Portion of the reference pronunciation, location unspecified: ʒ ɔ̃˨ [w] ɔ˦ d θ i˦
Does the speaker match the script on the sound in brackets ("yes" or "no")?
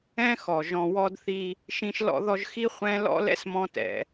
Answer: yes